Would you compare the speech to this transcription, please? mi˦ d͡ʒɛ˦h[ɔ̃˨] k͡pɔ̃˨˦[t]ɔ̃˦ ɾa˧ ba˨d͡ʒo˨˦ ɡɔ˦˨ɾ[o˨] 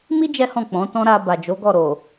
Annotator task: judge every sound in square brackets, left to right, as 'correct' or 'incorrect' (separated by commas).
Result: incorrect, correct, correct